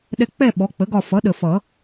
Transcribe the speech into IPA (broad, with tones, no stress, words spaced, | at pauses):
ɗɛ˦˨ k͡pɛ˦˨ ɓɔ˩˥k͡pə˩˥ɡɒ˦˨ fʌ˩˥ɗə˨˩fʌ˨˩˦